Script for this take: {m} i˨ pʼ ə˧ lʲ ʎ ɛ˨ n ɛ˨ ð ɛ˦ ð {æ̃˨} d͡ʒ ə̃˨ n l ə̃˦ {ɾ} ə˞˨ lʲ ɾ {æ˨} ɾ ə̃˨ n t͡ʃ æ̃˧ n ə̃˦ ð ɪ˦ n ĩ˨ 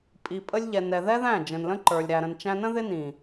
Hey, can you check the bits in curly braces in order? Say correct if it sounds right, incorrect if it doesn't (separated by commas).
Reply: incorrect, incorrect, incorrect, correct